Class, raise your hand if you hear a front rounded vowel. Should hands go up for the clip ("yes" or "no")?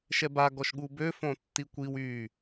yes